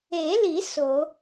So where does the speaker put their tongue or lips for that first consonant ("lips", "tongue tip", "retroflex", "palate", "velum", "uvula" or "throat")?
tongue tip